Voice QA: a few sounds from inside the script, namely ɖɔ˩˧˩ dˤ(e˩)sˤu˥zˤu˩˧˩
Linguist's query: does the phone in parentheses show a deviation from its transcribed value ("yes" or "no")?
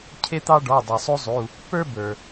no